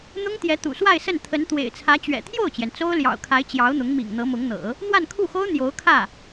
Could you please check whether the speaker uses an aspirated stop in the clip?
yes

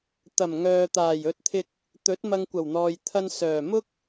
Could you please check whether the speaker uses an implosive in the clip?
no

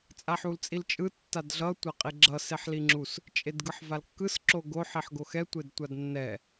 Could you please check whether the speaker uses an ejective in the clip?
yes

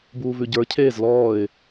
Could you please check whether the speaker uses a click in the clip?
no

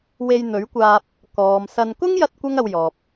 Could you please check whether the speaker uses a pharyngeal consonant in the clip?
no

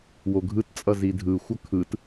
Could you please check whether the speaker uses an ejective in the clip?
yes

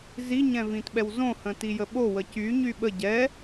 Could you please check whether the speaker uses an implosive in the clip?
yes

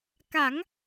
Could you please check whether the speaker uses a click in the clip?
no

